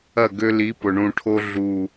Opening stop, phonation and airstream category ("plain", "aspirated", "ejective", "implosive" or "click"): plain